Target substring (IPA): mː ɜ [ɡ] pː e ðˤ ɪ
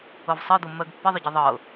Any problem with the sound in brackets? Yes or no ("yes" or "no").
no